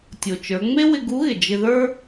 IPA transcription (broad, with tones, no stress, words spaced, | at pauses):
tʲo˩t͡ʃə˞˩˧ ŋ͡me˥wɪ˧ɡu˧˥ɣɪ˩ d͡ʒɪ˧ðə˞˥